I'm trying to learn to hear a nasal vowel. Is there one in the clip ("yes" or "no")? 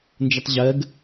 no